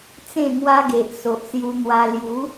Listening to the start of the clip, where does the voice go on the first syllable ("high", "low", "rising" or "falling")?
falling